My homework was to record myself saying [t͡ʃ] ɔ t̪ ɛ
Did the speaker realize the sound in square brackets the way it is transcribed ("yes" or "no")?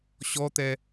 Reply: no